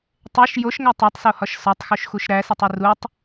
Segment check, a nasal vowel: absent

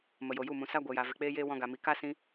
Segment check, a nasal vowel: present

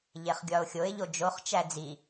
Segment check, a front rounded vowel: absent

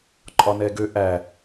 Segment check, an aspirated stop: absent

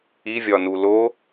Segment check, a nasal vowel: absent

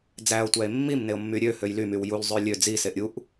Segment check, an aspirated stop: absent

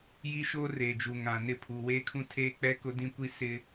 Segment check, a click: absent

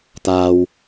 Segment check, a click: absent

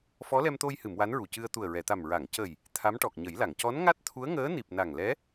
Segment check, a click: absent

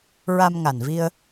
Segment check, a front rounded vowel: absent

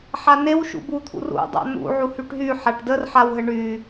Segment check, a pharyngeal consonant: present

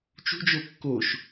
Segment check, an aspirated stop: absent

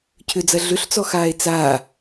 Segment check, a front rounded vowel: present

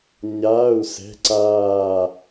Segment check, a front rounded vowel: absent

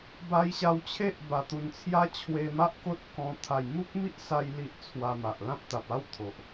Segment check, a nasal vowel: present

